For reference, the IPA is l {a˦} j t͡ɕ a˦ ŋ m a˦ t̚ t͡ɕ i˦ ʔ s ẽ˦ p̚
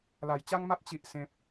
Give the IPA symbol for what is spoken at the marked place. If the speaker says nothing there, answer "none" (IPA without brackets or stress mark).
a˥˧